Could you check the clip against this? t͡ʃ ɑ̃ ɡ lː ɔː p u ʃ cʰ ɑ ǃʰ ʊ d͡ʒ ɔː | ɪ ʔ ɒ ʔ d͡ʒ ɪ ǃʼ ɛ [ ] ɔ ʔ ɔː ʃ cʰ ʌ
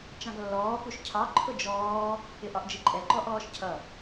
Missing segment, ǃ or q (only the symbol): ǃ